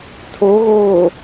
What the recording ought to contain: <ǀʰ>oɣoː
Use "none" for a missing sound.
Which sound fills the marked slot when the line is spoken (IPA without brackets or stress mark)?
tʰ